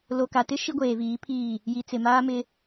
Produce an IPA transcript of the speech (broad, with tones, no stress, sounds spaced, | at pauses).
l o˨ k a˨ t ɪ˦ ʃ i˦ ɡʷ eː˨ v iː˨˦ pʰ iː˦˨ | j i˨ t͡s ɪ˨ m aː˦ m ɪ˦